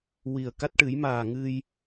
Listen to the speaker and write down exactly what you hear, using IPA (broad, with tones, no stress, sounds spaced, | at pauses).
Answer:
w i˨˩ ə̯ k a˦˥ t̚ ʈ ɨ˨˩˦ j m aː˨˩ ŋ ɨ˧ j